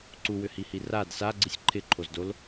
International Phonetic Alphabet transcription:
ǀuwʏhihi rad saɡ͡ǀisʲ ǃʰɪǃʰozdol

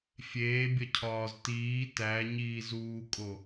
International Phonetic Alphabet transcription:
fʲeːbʲɒcʰɒːz tiː tæɲiːzuːkʼo

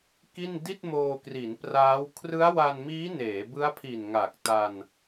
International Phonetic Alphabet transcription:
ki˥˩n di˥˩t̚moː˧kri˩˦n praː˦˥w kʰrɯ˦˥a̯wa˧nmiː˦˥ neː˩˦bɯ˦˥a̯pʰi˨˩n ŋa˨˩k̚ ta˧n

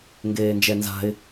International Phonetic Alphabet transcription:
ŋɡeːnd͡ʒɛnza̤ɪ̯

